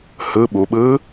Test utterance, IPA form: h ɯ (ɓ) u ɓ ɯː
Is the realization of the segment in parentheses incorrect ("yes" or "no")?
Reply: no